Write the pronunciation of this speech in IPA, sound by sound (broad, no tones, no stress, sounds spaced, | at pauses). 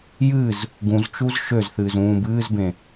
j ɨ z | ɡ ũ z t͡ʃ u z ʃ ø z θ ɨː z ũː b ɨː z b ẽ